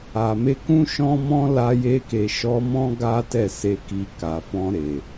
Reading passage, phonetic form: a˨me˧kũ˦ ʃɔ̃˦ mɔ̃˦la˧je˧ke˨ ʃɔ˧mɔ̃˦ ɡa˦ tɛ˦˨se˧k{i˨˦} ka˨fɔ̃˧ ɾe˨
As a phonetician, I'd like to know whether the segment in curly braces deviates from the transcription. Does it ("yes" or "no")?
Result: yes